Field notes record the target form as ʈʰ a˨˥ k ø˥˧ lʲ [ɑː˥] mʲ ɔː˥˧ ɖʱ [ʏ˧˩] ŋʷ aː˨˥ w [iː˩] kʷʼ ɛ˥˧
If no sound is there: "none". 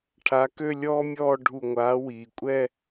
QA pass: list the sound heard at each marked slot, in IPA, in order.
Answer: ɔː˥, u˧˩, iː˩

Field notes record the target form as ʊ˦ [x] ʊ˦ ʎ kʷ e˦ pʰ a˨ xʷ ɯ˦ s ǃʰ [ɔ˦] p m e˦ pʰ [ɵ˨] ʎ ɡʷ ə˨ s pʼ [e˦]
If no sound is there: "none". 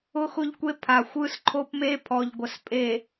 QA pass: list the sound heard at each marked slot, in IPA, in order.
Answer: x, o˦, ɔ˨, e˨

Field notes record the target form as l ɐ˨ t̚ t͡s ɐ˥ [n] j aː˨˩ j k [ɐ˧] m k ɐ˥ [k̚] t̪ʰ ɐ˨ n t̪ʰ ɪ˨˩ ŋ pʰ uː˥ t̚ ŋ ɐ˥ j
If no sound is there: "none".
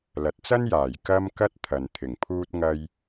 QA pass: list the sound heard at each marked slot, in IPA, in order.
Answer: n, ɐ˧, t̚

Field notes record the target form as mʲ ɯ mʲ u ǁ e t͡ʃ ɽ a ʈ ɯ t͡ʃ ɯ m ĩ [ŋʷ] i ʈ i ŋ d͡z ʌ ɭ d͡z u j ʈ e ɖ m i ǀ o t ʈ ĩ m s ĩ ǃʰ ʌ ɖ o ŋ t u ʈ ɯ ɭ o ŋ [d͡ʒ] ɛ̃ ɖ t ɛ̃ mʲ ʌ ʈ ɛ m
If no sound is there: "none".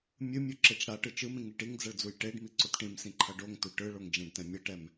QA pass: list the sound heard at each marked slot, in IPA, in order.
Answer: ŋ, d͡ʒ

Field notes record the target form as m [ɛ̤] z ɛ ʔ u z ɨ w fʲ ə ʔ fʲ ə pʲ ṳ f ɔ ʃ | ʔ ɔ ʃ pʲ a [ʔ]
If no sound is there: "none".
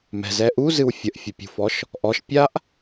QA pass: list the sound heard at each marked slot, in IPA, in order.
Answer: ɛ̤, ʔ

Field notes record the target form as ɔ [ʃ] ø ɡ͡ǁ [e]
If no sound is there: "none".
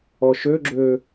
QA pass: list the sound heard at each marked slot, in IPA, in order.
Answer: ʃ, ø

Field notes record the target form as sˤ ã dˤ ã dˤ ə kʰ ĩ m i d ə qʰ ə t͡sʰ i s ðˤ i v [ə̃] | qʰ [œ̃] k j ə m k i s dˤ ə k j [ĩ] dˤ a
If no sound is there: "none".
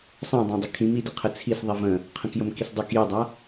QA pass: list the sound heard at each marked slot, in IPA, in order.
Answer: ə̃, ə̃, i

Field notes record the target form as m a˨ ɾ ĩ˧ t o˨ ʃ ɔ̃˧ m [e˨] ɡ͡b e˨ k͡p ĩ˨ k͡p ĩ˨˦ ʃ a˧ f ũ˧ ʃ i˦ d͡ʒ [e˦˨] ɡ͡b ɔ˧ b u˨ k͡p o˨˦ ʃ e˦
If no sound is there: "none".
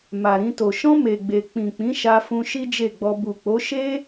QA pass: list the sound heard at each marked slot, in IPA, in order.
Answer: e˨, e˦˨

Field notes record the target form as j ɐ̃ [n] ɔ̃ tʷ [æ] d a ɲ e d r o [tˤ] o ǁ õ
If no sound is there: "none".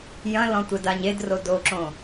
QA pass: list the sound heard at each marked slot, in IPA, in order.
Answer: l, ɛ, d

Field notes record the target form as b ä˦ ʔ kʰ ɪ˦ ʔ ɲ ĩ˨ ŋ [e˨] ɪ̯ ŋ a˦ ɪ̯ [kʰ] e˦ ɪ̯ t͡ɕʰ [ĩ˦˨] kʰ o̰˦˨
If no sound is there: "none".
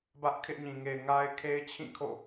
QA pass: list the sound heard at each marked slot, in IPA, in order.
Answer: e˨, kʰ, ĩ˦˨

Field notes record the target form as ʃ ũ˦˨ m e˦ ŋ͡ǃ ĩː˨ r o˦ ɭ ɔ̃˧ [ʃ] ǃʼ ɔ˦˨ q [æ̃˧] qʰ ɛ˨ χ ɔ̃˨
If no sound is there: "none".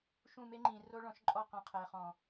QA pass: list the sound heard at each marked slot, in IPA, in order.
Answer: ʃ, ã˧

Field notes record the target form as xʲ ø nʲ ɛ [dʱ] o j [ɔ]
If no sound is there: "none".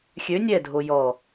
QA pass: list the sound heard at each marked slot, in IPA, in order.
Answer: dʱ, ɔ

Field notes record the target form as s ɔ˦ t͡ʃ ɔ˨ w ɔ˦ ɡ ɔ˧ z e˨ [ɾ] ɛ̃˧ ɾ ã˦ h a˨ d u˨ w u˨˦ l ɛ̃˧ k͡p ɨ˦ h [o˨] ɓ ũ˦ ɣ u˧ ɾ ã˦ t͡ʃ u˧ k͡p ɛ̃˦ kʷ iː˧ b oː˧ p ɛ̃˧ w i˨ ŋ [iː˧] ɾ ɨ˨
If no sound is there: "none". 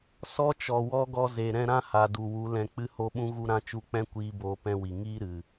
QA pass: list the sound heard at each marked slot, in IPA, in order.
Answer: ɾ, o˦, iː˦

